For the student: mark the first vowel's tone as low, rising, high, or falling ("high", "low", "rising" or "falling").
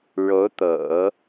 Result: rising